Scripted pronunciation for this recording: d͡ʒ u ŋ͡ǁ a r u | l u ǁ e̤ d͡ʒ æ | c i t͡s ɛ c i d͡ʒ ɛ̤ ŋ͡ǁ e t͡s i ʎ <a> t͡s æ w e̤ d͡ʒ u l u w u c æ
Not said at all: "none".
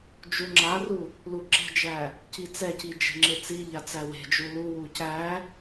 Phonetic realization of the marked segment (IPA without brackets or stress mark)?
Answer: a